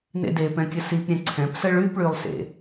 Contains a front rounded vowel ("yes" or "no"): yes